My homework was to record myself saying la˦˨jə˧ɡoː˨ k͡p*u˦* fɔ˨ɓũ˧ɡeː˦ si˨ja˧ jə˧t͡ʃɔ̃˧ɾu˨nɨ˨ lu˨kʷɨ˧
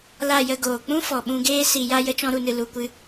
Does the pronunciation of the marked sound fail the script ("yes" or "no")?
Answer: yes